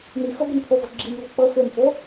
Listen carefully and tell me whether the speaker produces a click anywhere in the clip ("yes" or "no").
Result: yes